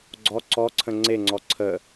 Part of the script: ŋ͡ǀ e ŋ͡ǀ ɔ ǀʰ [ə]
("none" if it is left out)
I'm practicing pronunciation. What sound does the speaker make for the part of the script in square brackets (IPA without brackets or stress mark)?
ə